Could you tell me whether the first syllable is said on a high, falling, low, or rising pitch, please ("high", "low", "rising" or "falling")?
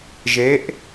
rising